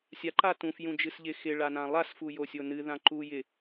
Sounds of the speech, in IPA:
sʲa ǃatũf jũd͡ʒɨsʎɪ xɪ ɭanãlˠas fujosʲonɨ ðãǃu jɪ

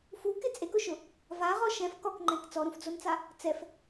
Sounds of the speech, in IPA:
fukɪ t͡sʼekʊʃʊ | vaʁɔ ʃɛ̃f kɔkŋ͡ǃɛ̃k t͡sɔɾũfd͡zont͡sa | t͡sɛf

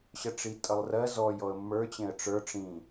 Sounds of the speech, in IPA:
ɕʌʈ͡ʂitʼʌlˠrɜ zɔj ɔə̯mːə˞ t͡ɕẽə̯ʈ͡ʂə˞ ʈ͡ʂĩ

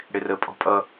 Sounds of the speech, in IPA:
ɽɪrə pʼɔ̤pʼʌ

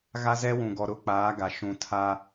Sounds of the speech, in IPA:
ɣa˦zɛ˦wũ˨ɡɔ˨ ɾʊ˦k͡paː˨˦ɡa˨ ʃũ˨tʰa˦

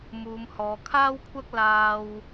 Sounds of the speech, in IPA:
muː˨˧mhɔː˨˧ kʰaː˥wkʷʰɐ˥k̚ laː˥w

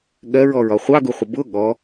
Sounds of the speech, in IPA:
ɠɜɹɔɹɒ χʷɑɡuχʷə bʊ ɠɔ

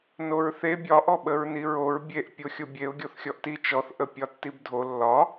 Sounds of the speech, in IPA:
noɹθe bʲɒ ʔɔɓəɹniɹoɹ bʲeʔ pʲoxʲobʲeʊ̯ ɡʲoθxʲɔʔti t͡ʃɔθ ʔəpʲɒtːibdʱo lːɒ

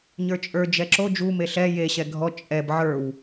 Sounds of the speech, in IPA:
ɲə˞t͡ʃʼə˞ d͡ʒɛǁo d͡ʒu meɬɛ je ɕɛɡʱɔ t͡ʃʼɛb ʕə˞w

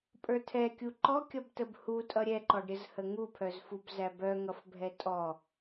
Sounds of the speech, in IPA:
pʼə˞tʰɛkʲu ǃɔkʲʌbtəb hutʼʌ ɾʲɛǃɔɖɾʲəzhə ŋupʰœzfub zæbœŋʌfbʱɛ tʼɔ

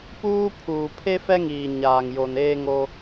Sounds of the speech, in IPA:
puː˦pʰuː˨ pʰe˦fɛ˦ŋiː˨ ɲaː˨ŋjo˨n eː˦ŋo˦

